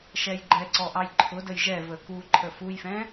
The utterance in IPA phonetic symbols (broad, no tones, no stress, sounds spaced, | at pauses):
ʃ ɛ j ɡ͡ǃ ɛ ǀ ɔ ʔ ɑ j ǃʰ ʊ d ə j ʒ ɛ v ə k u ǃʰ ə f u j f ɛ̃